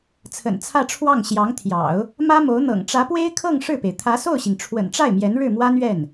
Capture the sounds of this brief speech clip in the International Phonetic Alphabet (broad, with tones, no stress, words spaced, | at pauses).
t͡sʰə̰˨˩nt͡sʰä˥˧ʈ͡ʂʰwɑ˥˩ŋ ɕjɑ˧˥ŋt̪ʰjɑ̰˨˩˦ʊ̯ | mä˥mo˧˥ʊ̯n̪ɤ̰˨˩ŋ ʈ͡ʂä˧˥pwe˥ɪ̯ kʰɤ˥˧ŋ ʂɻ̩˥˩pe˩ɪ̯ t̪ʰä˧˥so˥˩ʊ̯ɕi˩ŋ ʈ͡ʂʰwə̰˨˩nʈ͡ʂa˥˩ɪ̯ mjɛ˧˥nɻɻ̩˥˩mwa˥nɥɛ˥˩n